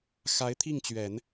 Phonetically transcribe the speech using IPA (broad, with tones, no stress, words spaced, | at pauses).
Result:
xa˧˥ɪ̯t̪ʰi˥˩ŋt͡ɕɥɛ˨˩˦n